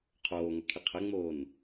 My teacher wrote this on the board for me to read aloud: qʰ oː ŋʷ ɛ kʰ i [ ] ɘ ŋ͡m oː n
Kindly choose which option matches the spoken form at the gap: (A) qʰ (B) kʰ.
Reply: A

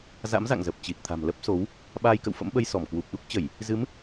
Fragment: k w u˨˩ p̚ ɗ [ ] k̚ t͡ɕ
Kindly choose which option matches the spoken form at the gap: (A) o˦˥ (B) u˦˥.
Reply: B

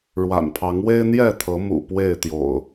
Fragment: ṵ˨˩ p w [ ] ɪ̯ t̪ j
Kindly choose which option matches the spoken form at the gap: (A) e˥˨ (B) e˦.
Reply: A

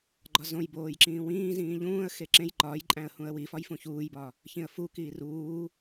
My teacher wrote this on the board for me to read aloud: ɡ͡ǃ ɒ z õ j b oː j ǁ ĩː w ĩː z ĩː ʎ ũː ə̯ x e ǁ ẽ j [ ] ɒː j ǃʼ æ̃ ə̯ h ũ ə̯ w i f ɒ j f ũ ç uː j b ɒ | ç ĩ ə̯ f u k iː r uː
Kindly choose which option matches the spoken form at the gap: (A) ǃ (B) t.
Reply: A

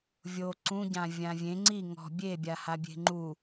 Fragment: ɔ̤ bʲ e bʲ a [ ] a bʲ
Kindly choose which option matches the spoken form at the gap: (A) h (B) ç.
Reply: A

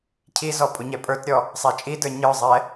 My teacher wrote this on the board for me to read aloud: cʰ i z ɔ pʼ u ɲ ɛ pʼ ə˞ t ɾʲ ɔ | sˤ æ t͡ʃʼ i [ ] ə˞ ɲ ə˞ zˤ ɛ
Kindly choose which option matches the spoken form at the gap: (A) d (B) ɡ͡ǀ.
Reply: A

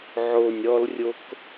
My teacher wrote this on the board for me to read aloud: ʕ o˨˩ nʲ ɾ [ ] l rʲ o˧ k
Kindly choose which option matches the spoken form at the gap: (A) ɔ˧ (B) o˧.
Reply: A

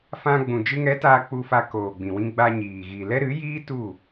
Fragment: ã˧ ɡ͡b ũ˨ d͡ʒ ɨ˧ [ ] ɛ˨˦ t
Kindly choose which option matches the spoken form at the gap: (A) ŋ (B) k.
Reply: A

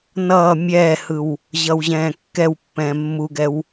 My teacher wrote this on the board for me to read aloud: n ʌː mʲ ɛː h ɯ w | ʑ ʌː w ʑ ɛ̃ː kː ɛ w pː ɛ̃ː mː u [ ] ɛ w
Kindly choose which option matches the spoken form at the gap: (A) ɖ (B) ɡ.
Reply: B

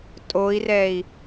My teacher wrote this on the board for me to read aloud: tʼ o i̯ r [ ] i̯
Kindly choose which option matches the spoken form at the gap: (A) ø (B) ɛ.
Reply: B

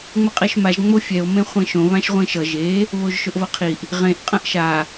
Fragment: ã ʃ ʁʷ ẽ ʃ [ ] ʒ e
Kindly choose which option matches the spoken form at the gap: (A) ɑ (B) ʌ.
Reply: B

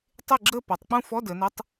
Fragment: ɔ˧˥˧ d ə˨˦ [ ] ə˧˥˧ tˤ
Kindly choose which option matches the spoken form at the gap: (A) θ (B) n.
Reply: B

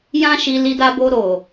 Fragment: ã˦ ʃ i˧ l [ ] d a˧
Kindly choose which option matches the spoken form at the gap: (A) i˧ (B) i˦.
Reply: A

